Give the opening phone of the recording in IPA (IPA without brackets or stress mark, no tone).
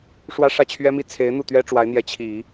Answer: ʂ